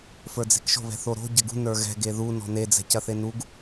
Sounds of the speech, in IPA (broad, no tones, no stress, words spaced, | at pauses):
fə˞d͡ze̤kʃo̤ βɛ̤θoɾo̤ ɟɐɡṳ nə˞ɣɛ̤ ɡeðu nɔ̤ne d͡zɛ̤cɐθenuɡ